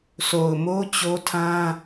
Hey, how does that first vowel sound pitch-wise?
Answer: low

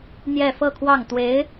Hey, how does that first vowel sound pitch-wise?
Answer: falling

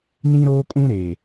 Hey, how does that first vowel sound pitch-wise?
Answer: high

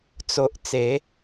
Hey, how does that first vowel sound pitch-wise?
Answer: high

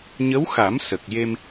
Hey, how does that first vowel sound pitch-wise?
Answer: rising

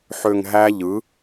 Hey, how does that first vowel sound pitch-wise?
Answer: low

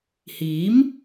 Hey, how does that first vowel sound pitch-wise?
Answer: rising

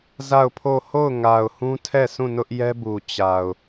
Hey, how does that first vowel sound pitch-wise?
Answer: falling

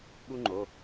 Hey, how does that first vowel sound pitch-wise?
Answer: high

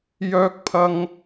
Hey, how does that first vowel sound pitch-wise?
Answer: high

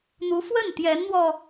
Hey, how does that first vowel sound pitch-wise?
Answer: rising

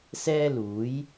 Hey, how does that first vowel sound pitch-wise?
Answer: high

